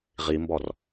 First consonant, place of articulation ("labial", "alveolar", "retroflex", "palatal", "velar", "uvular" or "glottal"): uvular